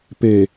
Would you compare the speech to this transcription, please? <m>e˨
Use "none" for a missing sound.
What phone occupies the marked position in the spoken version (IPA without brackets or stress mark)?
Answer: p